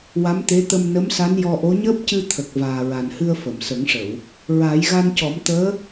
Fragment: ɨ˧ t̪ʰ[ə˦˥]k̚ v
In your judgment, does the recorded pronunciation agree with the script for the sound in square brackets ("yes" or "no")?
no